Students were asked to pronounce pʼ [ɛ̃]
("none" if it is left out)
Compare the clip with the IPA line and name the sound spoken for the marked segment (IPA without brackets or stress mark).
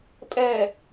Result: ɛ